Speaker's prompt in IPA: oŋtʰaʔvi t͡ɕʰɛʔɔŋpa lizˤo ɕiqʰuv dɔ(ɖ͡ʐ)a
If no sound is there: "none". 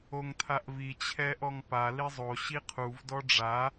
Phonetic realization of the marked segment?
ɖ͡ʐ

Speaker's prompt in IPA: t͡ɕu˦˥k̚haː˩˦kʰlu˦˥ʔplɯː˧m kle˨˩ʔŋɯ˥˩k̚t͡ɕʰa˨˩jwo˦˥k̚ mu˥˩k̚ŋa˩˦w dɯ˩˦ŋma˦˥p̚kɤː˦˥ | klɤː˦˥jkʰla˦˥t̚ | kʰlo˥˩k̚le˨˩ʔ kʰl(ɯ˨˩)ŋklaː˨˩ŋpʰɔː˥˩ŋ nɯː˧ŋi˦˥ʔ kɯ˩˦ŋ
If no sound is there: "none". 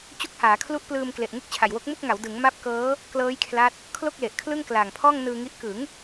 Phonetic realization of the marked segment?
ɯ˥˩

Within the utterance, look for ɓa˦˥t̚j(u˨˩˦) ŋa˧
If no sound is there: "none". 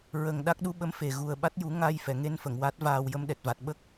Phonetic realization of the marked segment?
u˨˩˦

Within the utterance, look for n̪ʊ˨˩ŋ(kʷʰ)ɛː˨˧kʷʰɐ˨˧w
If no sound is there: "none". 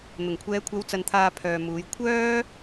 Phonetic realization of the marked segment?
kʷʰ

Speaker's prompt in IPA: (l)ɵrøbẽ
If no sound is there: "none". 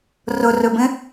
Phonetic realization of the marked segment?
r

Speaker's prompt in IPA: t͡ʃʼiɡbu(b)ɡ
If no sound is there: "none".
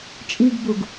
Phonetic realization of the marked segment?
none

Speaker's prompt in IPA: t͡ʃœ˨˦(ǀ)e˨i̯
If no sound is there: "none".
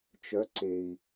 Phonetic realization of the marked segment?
ǀ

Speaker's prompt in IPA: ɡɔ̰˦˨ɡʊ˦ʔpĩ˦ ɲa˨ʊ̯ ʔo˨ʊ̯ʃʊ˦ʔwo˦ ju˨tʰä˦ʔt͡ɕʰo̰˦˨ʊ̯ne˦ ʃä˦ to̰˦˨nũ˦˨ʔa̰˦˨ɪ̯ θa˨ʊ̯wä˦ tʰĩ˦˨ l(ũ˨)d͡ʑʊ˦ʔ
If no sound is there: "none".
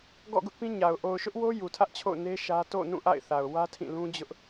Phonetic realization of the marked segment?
ũ˦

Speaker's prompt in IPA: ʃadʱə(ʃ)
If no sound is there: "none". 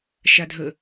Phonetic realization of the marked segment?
none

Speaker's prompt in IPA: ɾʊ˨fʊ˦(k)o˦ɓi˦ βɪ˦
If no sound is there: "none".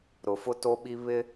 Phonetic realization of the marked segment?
t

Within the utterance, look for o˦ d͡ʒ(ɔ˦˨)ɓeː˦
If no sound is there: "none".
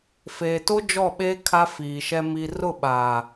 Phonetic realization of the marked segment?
ɔ˦˨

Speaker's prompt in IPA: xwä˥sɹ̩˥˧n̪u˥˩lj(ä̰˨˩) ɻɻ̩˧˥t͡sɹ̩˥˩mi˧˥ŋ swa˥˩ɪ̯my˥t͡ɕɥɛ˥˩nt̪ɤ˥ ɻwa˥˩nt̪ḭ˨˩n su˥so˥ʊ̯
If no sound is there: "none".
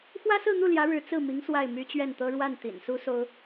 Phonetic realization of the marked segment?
ä˧˥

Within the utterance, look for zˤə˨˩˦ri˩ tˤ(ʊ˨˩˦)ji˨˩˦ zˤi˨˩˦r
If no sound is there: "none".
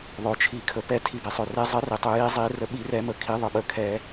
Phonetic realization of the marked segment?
ɵ˨˩˦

